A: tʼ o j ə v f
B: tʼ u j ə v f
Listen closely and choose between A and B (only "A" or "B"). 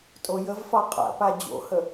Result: A